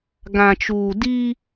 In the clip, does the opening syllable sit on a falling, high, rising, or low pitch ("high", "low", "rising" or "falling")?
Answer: low